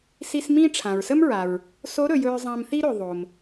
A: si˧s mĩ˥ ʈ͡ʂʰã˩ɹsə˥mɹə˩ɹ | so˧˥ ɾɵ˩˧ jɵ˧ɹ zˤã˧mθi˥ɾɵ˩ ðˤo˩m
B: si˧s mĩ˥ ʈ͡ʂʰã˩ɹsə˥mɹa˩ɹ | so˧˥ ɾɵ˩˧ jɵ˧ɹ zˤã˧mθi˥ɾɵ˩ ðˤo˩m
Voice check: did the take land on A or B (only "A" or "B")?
B